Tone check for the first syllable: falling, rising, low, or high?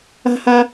high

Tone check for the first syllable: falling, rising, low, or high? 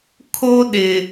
high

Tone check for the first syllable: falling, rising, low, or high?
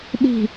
falling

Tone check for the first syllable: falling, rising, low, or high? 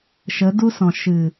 rising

